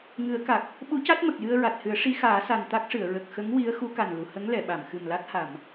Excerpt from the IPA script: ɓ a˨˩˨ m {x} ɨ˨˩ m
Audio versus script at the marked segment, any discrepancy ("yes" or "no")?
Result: no